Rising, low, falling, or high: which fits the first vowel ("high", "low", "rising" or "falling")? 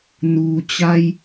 low